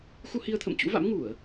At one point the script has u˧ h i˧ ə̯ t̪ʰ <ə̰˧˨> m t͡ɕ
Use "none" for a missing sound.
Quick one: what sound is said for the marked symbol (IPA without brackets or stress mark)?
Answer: ə̰˧˨